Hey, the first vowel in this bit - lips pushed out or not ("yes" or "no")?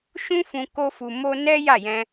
yes